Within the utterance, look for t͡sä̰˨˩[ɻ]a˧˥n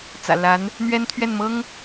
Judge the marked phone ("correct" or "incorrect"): incorrect